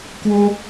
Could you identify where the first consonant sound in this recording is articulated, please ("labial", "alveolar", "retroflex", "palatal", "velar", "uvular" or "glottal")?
velar